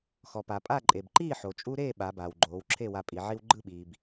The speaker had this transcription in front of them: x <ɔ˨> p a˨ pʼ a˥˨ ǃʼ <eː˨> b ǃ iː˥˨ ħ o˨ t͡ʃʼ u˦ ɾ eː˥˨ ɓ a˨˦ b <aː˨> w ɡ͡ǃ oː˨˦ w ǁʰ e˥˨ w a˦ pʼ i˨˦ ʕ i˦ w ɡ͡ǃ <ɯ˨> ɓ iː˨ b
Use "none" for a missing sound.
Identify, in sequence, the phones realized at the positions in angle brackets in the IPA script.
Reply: ɔ˨, e˨, aː˨, ɯ˥˨

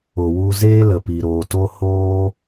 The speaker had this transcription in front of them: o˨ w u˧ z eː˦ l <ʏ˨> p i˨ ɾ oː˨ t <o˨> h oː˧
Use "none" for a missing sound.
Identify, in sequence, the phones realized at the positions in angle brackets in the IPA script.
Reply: ə˨, o˦

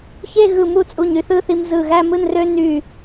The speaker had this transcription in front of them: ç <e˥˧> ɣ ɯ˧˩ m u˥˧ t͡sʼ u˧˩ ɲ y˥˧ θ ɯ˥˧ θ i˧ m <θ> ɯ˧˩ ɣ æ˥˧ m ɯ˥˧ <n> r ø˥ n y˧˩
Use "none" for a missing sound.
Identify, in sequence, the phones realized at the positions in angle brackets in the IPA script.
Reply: e˥˧, z, n

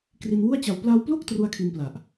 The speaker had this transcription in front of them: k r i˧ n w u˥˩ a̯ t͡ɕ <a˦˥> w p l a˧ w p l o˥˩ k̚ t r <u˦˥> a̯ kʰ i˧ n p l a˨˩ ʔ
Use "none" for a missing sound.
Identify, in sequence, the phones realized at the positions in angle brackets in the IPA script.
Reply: a˧, u˦˥

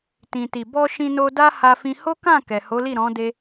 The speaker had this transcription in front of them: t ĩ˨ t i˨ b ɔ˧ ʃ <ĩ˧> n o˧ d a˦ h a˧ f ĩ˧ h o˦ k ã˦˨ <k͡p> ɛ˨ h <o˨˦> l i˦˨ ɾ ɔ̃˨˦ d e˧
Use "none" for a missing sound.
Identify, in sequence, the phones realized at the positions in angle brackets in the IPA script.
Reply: ĩ˧, k, o˨˦

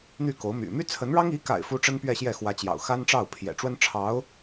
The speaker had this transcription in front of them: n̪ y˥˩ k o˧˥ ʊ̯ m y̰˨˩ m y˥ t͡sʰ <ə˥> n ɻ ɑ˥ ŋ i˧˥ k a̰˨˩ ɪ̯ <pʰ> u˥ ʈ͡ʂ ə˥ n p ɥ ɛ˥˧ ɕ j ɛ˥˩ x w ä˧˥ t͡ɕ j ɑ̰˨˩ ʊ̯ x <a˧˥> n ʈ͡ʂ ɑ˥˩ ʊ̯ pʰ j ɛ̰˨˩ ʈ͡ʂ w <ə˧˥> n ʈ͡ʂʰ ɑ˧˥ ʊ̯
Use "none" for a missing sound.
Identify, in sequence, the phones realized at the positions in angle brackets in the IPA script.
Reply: ə˧˥, f, a˥, ə˥

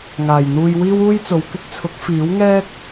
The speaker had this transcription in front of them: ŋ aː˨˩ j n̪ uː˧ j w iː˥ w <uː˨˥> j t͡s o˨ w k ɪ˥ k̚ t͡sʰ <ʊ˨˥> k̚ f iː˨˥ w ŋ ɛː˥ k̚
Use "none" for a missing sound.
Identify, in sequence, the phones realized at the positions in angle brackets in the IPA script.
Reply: uː˥, ʊ˨˥

